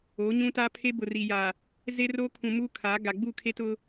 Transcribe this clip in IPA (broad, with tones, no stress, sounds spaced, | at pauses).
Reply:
oː˨˦ ɲ ũ˦ t aː˦ pʰ e˦ b ʊ˨ r iː˨ j aː˨ | z e˦ r oː˦ kʰ ũ˨ m uː˦ kʰ a˨˦ ɡ a˨ ɡ͡b u˦˨ kʰ e˦ t ʊ˦